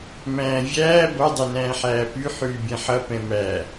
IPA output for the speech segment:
m æ̃ː vʲ æː b ʌ dˤ ɛ n æ̃ː ħ æː p y ħ yː bʲ ɛ̃ ħ ʌ p ɛ̃ m æ

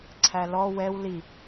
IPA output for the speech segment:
ǀʰ æ l ɔ w ɛ w l i

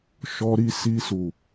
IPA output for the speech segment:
ʃ ɔ˧ ɾ i˧ s i˧ s u˨

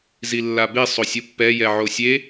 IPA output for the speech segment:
z i lː a b e sˤ o sʲ o pː ɛ j ɛ ʕ o sʲ e

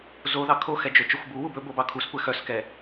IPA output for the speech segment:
z o ð ɑ kʰ o x ɛ d͡ʒ ø t͡ʃ ɵ xʷ b u w u b ɵ b o b ɑ kʰ u s kʷ ɛ x œ s k ɛ

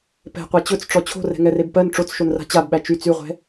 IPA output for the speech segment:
p ɛ̤ qʷ a t͡ɕ ɵ t͡s ʈ͡ʂ ɔ t͡ɕʰ o̤ r ɛ̤ ŋ ɛ r e b p ɜ n ʈ͡ʂ o t͡s ʃ o n r a̤ t͡ɕ a b ɓ æ t͡ʃ y t͡s y ʁʷ ɛ̤

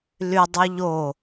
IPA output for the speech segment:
l y dˤ y ʎ o

